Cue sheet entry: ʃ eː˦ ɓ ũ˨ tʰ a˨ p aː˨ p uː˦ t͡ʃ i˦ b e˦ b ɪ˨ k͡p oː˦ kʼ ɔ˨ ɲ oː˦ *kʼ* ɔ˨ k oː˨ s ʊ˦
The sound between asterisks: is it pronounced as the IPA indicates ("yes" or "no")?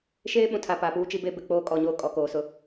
yes